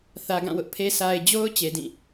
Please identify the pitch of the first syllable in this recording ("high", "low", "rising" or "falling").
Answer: low